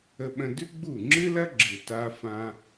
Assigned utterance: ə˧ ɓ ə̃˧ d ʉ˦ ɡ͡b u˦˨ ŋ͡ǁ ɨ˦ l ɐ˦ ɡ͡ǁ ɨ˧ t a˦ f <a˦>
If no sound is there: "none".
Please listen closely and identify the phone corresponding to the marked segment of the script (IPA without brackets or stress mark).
ã˦